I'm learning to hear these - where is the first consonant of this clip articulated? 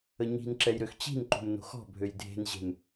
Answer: palate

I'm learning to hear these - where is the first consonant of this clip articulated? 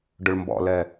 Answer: retroflex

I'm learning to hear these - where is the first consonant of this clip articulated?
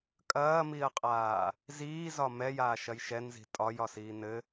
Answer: velum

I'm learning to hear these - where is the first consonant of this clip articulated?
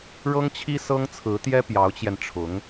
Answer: retroflex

